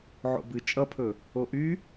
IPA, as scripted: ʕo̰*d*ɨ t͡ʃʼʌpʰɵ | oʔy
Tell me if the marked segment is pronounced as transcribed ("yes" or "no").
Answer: no